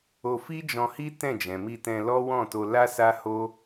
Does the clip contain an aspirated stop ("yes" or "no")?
no